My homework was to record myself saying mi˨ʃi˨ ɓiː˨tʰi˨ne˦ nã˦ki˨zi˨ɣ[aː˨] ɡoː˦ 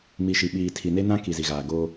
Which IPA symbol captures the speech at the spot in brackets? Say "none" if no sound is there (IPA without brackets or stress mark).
aː˨